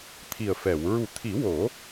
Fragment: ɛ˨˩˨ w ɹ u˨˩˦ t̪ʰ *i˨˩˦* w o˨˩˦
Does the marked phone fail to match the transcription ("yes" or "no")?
no